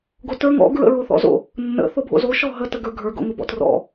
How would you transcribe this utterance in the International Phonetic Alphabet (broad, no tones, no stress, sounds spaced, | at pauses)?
ɡ o t ə˞ ŋ ɔ̰ ɡ ɹ ə̰ ɹ o θ ɔ̰ z o̰ | nː ə̰ θ o bʱ o̰ z o ʃ ɔ ɦ ə t ə ɡ ə˞ ɡʱ ə˞ ɡ o̰ ŋ ʊ b ɔ̰ t r ɔ̰